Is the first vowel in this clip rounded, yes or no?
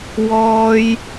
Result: yes